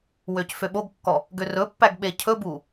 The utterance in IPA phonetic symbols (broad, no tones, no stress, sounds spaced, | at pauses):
w ø c f ø ɓ o ɡ kː ɔ | ɡ ø r ɵ pː æ ɡ ɓ e cʰ ɵ b u